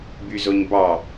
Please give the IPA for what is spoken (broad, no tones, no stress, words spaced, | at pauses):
byzoɲbɑ